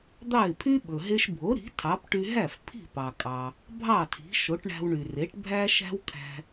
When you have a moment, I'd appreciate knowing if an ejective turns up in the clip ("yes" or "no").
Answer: yes